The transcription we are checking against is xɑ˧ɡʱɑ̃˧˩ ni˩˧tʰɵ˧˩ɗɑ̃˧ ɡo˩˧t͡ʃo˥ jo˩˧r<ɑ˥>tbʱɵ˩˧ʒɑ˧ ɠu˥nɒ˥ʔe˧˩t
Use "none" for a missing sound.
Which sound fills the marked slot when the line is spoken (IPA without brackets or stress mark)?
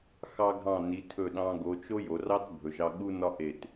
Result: ɑ˥